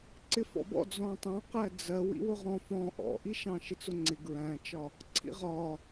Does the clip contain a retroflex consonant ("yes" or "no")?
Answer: no